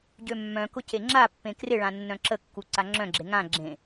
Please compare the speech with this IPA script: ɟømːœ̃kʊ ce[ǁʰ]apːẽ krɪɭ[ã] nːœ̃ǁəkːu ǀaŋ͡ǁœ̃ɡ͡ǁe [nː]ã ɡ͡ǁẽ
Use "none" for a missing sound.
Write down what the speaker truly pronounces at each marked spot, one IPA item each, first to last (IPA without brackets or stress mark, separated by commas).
ŋ͡ǁ, ã, ŋ